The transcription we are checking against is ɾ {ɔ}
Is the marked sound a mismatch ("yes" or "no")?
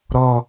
no